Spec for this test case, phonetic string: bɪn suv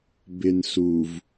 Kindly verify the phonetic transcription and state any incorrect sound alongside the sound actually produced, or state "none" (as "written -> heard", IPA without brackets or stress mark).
none